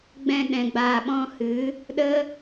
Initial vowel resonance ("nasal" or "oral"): nasal